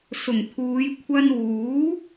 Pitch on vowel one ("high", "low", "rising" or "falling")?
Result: low